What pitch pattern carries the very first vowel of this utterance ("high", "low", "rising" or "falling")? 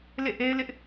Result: falling